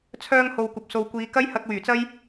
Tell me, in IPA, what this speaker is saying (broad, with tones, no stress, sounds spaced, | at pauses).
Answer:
t͡sʰ œː˧ ŋ h o˨ w kʷ ɐ˨ p̚ s o˨ w kʷ iː˨˧ k ɐ˥ j h ɐ˧ k̚ w yː˨˩ t͡s ɐ˥ j